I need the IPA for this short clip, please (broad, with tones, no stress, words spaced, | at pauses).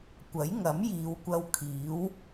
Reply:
kʷɐ˨˥jŋɐ˨˥mjiː˨˧wkʷɐ˧w kʰiː˨˥w